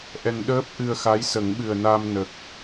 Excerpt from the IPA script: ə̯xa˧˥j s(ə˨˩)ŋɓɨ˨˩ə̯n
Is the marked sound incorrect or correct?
incorrect